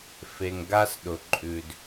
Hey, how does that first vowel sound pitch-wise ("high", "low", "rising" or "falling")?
low